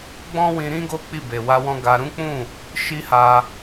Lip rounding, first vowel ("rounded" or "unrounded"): rounded